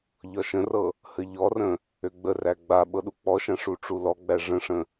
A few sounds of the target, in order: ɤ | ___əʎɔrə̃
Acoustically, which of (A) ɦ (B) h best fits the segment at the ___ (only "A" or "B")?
B